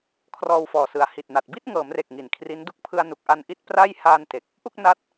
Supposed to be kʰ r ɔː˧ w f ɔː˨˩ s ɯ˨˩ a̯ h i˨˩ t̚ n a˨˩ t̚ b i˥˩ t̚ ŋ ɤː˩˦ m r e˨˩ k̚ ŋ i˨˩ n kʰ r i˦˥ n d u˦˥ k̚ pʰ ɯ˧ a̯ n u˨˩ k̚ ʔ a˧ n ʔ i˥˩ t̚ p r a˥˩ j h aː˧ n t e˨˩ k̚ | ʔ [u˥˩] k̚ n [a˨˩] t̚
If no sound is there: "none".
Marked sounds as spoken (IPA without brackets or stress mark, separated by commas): u˥˩, a˦˥